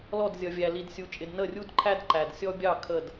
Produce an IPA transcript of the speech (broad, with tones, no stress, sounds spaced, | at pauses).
l ɔ˦˨ d zʲ ʌ˨ vʲ æ˨ l i˨ d sʲ u˨ t͡ʃʼ ɪ˨ d n ə˦˨ rʲ u˦ d ǃʰ æ˦ d ǃ æ˨ d sʲ ɔ˦ bʲ ɑ˦˨ kʰ ə˦˨ d